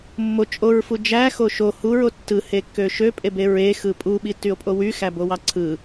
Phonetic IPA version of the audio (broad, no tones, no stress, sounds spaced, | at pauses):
mː o t͡ʃʼ o ɹ f u d͡ʒ æ x o ʃ o h u ɹ o tː ɯ h e kː ø ʃ ø pʼ e b e ɹ e x ɯ pʼ u ɓ i tː y o̯ pʼ o w y x æ b o w ɑ ǀʰ ɯ